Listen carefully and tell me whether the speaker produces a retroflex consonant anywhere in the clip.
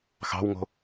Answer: no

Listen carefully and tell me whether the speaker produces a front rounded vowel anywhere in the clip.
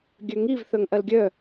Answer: yes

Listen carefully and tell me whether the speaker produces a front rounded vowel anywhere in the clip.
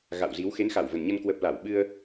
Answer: no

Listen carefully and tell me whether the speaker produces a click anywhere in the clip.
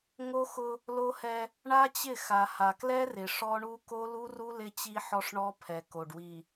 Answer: no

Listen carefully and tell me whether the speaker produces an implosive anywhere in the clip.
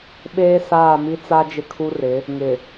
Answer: yes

